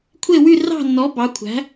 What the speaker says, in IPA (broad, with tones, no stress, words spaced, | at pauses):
kʷʰe˥˧wy˥˧ rɑ̤˥˧nːɔ˨˥ bɑ˨˥kʷʰæ̤˨˥